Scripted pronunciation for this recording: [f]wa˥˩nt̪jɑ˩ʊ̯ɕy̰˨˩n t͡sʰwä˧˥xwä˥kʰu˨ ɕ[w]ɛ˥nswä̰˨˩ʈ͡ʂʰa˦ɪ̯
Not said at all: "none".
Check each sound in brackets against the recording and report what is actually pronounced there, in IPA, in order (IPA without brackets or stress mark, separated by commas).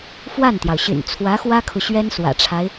f, ɥ